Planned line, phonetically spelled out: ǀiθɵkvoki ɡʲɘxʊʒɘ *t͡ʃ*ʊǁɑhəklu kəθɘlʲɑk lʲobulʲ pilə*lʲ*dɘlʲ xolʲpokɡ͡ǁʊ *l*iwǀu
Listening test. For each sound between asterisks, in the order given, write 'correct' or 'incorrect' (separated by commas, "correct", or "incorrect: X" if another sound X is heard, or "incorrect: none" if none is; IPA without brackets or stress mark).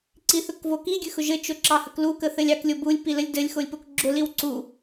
correct, correct, correct